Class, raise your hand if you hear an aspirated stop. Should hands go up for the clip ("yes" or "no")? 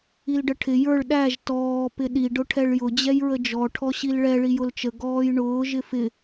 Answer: yes